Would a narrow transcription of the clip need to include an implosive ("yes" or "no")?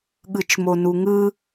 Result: yes